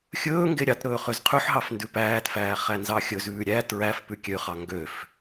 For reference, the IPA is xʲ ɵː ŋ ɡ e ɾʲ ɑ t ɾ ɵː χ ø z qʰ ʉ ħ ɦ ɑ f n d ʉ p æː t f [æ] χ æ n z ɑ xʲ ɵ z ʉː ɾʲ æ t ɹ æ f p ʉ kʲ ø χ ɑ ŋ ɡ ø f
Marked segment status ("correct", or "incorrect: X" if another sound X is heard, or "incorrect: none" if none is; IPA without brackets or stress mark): incorrect: æː